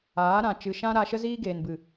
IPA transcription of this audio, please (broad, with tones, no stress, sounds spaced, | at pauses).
aː˨˦ ɾ ã˨ t͡ʃ ɨ˨ ʃ ã˦ ɾ a˧ ʃ ə˦ z iː˦ ɡ eː˨ n b ɨ˨